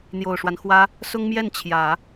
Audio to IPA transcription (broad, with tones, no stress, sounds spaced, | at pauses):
n̪ j o˨˩ ʊ̯ ʂ w a˦ n x w ä˥ | s ʊ˥ ŋ m j ɛ˥˩ n t͡ɕʰ j ä˨˩˦